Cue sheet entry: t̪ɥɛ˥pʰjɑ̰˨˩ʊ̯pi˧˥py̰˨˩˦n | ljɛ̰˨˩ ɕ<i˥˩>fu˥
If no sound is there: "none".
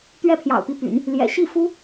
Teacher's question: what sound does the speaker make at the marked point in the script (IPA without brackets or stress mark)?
i˥˩